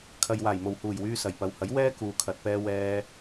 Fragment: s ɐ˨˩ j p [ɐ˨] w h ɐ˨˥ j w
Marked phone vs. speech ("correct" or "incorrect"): correct